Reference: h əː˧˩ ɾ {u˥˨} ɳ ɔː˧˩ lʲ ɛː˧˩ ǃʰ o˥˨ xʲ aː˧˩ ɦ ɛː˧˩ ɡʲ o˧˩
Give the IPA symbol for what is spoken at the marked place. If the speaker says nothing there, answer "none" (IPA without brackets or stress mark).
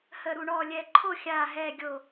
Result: u˧˩